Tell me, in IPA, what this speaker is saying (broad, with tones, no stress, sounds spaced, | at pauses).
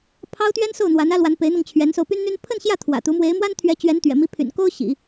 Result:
pʰ ɑ˥ ʊ̯ t̪ ɥ ɛ˥ n s o˥˩ ʊ̯ n̪ w a˧˥ n ä˥ l w a˧˥ n p e˧˥ ɪ̯ n̪ ɤ˧ ŋ t͡ɕʰ ɥ ɛ˧˥ n s o˧ ʊ̯ p y˥ n n̪ y˥ n pʰ ə˥˧ n ɕ j ä˥˩ t̪ʰ w ä̰˨˩ t̪ u˧˥ m w e˧˥ ɪ̯ m w a˥ n t̪ʰ ɥ ɛ˧˥ t͡ɕ ɥ ɛ˧˥ n t̪ ɥ ɛ̰˨˩ m i˧˥ pʰ y̰˨˩ n k o˥ ʊ̯ ɕ ḭ˨˩˦